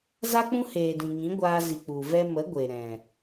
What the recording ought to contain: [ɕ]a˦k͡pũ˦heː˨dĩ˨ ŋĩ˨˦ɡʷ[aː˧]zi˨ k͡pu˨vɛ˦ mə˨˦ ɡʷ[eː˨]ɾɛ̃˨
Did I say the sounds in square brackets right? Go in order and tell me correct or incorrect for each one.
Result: incorrect: z, correct, incorrect: e˨

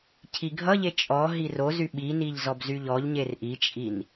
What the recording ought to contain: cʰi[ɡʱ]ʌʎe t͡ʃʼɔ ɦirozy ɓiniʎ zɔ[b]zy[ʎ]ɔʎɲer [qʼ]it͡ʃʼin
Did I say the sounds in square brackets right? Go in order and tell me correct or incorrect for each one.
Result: correct, correct, correct, incorrect: ʔ

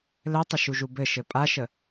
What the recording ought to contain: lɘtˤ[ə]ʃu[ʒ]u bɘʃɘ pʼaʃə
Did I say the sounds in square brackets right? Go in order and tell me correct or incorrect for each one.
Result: correct, correct

